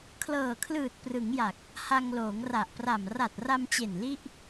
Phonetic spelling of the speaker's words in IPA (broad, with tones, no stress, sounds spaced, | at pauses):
kʰ l ɤː˨˩ kʰ l ɯː˨˩ t̚ p r ɯ˩˦ ŋ j a˨˩ k̚ | h a˧ ŋ l oː˩˦ ŋ r a˨˩ ʔ p r a˨˩ m r a˨˩ t̚ r a˧ m t͡ɕ e˨˩ n l i˥˩ ʔ